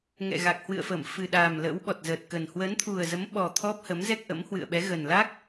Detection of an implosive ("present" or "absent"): present